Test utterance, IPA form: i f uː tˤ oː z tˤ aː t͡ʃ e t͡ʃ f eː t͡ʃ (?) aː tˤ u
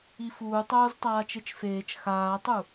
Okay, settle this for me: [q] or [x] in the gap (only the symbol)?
x